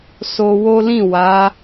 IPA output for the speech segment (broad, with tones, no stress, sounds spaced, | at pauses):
s o˧ w o˦ l ĩ˦˨ w a˨˦